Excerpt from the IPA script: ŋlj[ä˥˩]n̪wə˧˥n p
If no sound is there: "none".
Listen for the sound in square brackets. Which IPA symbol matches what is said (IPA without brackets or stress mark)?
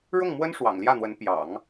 ä˥˩